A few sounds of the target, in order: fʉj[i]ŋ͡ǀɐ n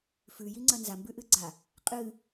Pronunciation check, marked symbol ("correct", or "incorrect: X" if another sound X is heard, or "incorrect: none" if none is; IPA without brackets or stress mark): correct